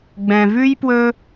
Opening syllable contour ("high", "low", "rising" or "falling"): low